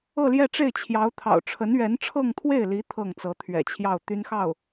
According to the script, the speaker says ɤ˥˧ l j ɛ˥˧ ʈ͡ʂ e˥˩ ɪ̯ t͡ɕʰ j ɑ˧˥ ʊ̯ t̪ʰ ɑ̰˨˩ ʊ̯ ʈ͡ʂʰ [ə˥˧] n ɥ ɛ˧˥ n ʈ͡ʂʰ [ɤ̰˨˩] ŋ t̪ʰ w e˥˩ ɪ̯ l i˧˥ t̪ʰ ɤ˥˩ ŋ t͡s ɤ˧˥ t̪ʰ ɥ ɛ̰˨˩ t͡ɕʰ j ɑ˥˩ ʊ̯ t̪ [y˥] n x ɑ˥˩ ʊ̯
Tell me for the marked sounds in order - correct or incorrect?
incorrect: ə˧˥, incorrect: ɤ˥˧, correct

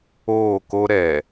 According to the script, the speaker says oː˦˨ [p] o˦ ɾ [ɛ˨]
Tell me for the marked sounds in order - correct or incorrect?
incorrect: k, correct

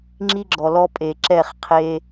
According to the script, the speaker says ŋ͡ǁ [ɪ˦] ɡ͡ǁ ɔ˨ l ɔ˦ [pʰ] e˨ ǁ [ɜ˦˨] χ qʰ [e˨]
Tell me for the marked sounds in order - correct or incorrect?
incorrect: i˦, incorrect: pʼ, incorrect: ɛ˦˨, incorrect: e˦

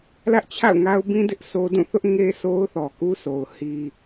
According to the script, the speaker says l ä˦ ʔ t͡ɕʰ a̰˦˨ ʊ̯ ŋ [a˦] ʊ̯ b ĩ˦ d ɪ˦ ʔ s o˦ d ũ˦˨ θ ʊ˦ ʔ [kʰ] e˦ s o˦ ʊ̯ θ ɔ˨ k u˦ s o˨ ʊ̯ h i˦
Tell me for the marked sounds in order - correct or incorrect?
correct, incorrect: ŋ

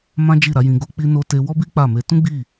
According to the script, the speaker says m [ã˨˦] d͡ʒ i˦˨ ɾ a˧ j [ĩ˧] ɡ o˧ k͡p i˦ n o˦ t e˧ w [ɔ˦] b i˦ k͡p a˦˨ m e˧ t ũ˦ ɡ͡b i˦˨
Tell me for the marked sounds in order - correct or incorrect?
incorrect: ã˦, correct, correct

